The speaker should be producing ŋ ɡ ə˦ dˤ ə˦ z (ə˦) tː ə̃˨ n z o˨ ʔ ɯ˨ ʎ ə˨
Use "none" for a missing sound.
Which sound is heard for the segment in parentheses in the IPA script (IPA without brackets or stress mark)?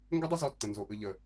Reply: ɔ˦